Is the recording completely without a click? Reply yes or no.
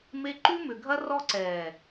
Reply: no